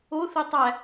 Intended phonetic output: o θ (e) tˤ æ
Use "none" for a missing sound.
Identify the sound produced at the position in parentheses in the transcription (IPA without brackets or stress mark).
e